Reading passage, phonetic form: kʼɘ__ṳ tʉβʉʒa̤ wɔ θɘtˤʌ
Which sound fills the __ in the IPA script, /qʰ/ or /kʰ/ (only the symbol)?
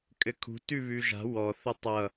kʰ